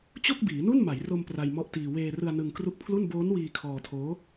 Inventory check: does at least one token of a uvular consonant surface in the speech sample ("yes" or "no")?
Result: no